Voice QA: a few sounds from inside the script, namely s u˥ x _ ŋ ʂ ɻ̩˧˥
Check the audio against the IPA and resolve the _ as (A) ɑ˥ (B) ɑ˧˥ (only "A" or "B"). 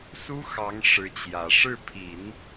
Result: B